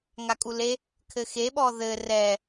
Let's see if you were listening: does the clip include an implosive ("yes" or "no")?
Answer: yes